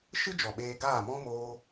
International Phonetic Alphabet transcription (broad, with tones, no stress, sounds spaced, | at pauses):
ʃ ɨ˦ d͡ʒ ɔ˨ ɓ eː˧ ɡ aː˦˨ m ɔ̃˦ m oː˦